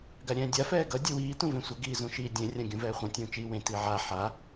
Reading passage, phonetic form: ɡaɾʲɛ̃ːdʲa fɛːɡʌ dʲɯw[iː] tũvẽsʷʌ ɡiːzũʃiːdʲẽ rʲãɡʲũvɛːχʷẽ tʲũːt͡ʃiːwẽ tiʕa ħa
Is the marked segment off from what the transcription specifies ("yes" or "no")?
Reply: no